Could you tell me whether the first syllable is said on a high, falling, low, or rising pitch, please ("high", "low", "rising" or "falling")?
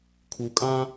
low